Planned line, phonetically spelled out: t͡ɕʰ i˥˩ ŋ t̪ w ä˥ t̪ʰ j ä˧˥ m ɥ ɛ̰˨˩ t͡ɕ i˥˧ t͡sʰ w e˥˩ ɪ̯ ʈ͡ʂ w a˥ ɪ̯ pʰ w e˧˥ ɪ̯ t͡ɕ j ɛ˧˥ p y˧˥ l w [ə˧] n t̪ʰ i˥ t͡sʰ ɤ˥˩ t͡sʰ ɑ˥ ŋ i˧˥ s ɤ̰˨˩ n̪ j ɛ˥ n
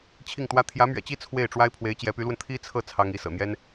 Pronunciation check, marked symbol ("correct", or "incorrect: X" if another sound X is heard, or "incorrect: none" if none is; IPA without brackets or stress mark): correct